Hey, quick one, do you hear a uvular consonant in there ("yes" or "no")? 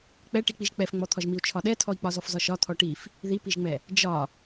no